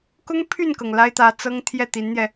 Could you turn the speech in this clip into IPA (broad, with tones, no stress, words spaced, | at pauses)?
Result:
kʊ˥ŋpʰy˥˩nkɤ˩ŋ la˥ɪ̯t̪ä˧˥t͡sɤ˥ŋ t̪ʰjɛ˥˩t̪i˧˥nn̪jɛ˧